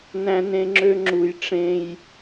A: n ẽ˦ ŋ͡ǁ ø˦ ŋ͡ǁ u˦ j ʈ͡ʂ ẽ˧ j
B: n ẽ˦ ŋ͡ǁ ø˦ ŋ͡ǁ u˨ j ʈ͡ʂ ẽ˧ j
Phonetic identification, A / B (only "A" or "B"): B